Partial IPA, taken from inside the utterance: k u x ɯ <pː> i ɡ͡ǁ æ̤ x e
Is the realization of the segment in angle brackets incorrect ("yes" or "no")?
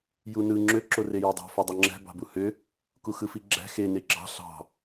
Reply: yes